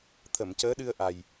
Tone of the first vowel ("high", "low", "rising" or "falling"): low